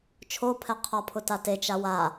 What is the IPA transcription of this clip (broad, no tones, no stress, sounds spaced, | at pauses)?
t͡ʃʰ o pʰ ɛ qʰ ɔ pʰ ʊ t a t e t͡ʃ a w a